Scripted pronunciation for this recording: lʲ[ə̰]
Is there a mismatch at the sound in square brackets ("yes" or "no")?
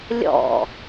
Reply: yes